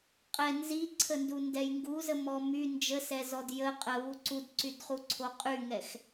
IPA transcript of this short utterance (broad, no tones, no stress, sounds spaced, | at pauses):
qʼ ɛ n z i ǀʰ ə n d u n d ɛ j ŋ ɡ u z ə m ɔ m y n d͡ʒ ə s ɛ z ɔ d j ə qʼ ə β u ǀ u d ǀ y d χ u ǀʰ o qʼ y ŋ ɛ x